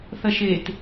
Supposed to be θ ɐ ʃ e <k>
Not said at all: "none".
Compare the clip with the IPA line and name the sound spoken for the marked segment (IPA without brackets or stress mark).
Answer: t